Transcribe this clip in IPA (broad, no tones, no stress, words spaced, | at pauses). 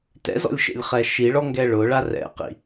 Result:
tɛ̰zɔ̰lʲʃḛlʲχɛ ʃiɭɔŋɡɛ ɭʊɭa rɛ̰qḭ